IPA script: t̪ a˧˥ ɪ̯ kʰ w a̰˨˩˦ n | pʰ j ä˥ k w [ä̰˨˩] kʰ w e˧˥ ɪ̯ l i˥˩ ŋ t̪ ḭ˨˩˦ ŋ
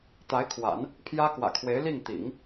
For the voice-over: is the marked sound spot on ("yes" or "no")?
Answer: yes